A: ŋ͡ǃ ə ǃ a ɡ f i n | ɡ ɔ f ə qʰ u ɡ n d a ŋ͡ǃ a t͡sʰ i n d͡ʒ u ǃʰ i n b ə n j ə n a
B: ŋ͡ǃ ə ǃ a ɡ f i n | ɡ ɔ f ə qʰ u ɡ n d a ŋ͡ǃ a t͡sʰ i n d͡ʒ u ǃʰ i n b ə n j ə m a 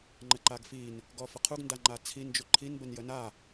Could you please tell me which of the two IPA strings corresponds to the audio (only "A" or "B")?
A